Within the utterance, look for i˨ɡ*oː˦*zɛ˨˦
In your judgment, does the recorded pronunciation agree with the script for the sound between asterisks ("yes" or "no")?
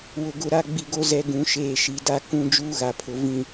no